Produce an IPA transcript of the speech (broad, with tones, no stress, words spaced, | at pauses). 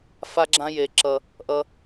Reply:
fa˦ɡ͡ǁã˦ je˨ǁʌ˨ | ʔʌ˨